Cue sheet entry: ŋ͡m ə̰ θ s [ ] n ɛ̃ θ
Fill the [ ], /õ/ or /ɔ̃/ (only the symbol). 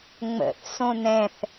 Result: õ